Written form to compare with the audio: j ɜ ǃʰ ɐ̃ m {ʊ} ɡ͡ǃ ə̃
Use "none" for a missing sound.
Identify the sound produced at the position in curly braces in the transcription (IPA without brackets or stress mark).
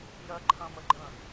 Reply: ə